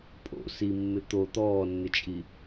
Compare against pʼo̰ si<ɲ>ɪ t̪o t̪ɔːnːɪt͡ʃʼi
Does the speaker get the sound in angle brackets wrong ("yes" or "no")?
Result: yes